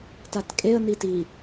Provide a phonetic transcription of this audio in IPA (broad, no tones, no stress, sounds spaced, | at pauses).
t a t kʼ e ə̯ n i t i